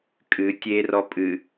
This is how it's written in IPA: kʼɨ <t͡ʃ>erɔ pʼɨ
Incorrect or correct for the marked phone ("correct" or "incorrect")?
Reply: incorrect